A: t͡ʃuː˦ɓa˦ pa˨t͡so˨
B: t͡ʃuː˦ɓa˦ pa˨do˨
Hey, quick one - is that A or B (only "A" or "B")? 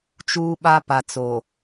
A